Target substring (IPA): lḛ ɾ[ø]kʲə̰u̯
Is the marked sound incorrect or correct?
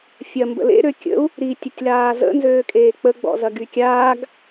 correct